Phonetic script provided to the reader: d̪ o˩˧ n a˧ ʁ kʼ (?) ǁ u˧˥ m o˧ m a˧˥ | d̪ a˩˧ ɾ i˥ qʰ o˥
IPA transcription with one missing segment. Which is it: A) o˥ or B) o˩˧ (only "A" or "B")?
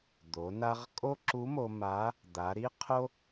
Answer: A